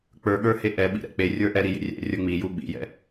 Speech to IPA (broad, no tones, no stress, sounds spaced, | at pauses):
k͡p ə˞ ɠ ə˞ h e ʔ ɛ ɓ ḭ ɾ ɛ̰ k͡p e rʲ ə˞ ʔ ɛ ɾ i j ḛ rʲ ɛ̰ rʲ ə˞ ŋ͡m i j u ɓ ḭ j ɛ̰